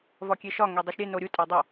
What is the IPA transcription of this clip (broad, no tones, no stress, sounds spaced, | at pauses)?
v ɒ kʲ e ʃ ɒ ŋ e dˤ o ʃ ɾʲ e n o ɾʲ u tʼ æ dˤ o